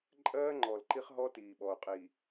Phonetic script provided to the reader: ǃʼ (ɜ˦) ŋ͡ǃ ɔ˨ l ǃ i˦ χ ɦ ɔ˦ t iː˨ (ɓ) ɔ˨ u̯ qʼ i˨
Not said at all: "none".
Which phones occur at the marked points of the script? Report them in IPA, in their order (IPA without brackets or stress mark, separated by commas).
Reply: ɜː˦, ɓ